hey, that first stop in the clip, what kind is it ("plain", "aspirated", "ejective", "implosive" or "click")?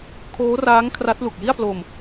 aspirated